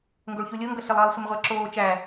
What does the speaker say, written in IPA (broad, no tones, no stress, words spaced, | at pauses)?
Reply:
ŋɡoɭçulʲoŋɡʌ ɬɪlˠʌːlˠ sʷɪmʁʷæǁoː t͡ʃæ